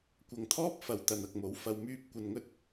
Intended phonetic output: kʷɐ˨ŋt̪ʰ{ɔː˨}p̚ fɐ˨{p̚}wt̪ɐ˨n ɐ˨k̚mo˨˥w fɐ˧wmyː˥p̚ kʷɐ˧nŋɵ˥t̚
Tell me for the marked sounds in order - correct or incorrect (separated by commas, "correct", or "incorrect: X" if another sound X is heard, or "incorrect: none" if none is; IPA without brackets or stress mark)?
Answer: incorrect: ɔː˥, incorrect: none